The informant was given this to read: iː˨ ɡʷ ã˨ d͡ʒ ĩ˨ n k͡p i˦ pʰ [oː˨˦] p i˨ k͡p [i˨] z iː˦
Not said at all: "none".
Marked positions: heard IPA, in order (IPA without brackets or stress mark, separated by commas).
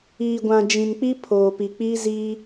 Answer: oː˨, i˦